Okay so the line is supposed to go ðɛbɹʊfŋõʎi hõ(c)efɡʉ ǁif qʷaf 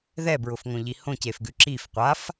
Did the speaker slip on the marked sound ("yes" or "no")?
no